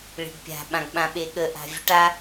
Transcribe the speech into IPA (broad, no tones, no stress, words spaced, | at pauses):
ɭe̤ɖpʲa̤ ɓãɡɓãɓeɠə ʔa̤vʲəʈa